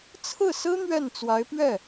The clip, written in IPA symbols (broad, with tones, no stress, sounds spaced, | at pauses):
t͡sʰ ɹ̩˥˩ s ɹ̩˥ n̪ ɥ ɛ˥˩ n t͡s w a˧˥ ɪ̯ p ɥ ɛ˥˩